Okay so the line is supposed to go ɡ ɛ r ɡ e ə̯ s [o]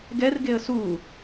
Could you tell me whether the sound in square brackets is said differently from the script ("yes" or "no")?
yes